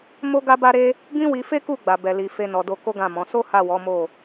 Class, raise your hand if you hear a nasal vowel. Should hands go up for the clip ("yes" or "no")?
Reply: yes